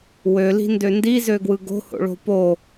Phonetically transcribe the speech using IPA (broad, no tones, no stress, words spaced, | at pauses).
wøli̤ndø ndizøɡwɯ ɡo̤ho̰ɭo̤ po